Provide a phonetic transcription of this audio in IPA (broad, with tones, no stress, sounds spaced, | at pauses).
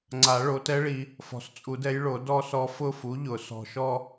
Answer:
ŋ͡ǀ a˨˩˦ ɭ o˩˥ t ɛ˧˥ ɭ i˨ | f ɔ̤˨ s t͡sʼ u˨˩˦ d ɛ˧˥ j ɭ o˨˩˦ d ɔ˥˧ s ɔ˧˥ f ʊ˥˧ f u˩˥ ʎ ʊ˨˩˦ s ɔ̤˨ ʃ ɔ˥˧